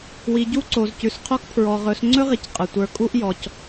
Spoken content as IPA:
wi˨ ɟu˦ǀo˨zcʉ˨s qʰo˧k pʰɹɔ˨ʁɵ˨˦s ŋ͡ǀɵ˦ʁi˨c qʼə˨tʷə˞˧ kʼu˦ʔjɔ˨c

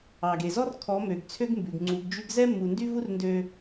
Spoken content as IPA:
ɑ˨ɡe˨zɔ˦r kʰɔ˨˦mø˨ɡt͡sʰø˦ɡ mbʉ˨ɡŋ͡ǀu˨˦ɡd͡ʒʉ˦ɡ zɛ˦mːu˨ndy˦ vu˦r ndø˦

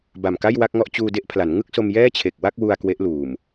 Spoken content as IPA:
ba˨˩mka˥˩jwa˥˩k̚ŋɔ˥˩ʔ t͡ɕuː˧de˥˩ʔpʰla˩˦n ŋɯ˥˩k̚so˧mjɛː˥˩t͡ɕʰe˨˩k̚ wa˥˩k̚wu˧a̯ kwe˦˥ʔluː˨˩m

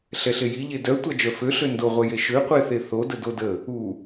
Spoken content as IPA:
ɬɛɬeji ʎedœ tʷad͡ʒœfø ɬøndoʁʷɛ jeʃøqʷeθe θo dədodə | u

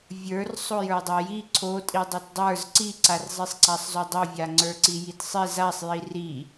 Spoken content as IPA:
vʲə˞r sˤojə˞dˤaji ǀʰo tʼidˤotdˤə˞z ǀiǀarzˤisˤ ǀasˤzodˤovʲa ŋ͡ǀə˞ǀijitsˤi zasˤji ri

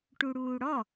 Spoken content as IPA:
ʈuɽuːɽɔ

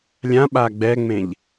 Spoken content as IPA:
lʲãɓa ɡ͡bɛŋ͡mẽʎ

